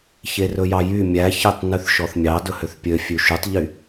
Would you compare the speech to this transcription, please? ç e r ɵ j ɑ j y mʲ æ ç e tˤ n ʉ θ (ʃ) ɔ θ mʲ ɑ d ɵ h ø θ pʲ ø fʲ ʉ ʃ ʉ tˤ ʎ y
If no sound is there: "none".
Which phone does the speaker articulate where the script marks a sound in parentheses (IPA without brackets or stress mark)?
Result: ʃ